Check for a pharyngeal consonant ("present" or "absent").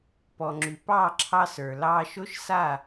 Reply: absent